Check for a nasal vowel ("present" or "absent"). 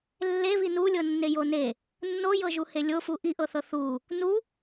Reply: absent